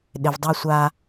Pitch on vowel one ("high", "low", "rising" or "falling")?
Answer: low